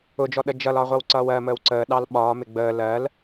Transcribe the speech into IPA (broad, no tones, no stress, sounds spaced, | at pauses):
ʊ d͡ʒ ɔ ɗ ə d͡ʒ ʌ l ɒ ʁʷ ʌ w ǀ ʌː w ɜ m əː w ǀ əː ɗ ɑ l ɓ ɒː m ɪ ɡ͡b əː l ɜ l